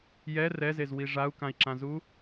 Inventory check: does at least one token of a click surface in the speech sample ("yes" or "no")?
yes